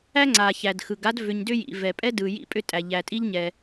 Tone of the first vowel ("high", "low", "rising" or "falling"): high